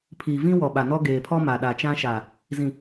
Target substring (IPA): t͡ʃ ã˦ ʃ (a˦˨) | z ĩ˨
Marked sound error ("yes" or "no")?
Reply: yes